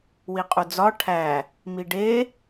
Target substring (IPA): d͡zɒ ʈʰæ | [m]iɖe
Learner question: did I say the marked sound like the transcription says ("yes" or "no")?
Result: yes